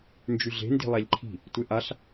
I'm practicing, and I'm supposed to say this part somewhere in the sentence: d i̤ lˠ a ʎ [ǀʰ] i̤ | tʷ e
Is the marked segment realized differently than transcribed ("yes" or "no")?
yes